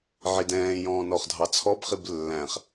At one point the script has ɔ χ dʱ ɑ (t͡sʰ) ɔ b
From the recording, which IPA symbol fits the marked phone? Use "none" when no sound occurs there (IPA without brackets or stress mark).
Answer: t͡sʰ